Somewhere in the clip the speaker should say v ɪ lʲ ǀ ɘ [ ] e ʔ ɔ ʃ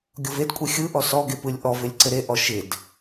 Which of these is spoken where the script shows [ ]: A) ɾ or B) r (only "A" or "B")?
A